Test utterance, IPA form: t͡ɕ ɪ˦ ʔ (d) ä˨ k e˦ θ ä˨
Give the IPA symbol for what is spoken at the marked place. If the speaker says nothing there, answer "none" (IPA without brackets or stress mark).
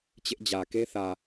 d͡ʑ